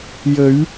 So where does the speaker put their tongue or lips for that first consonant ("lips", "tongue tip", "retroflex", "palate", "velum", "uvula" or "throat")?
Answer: palate